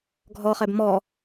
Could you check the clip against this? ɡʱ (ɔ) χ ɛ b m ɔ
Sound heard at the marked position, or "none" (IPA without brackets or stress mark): ɔ